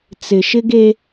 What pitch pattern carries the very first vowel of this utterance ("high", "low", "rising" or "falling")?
low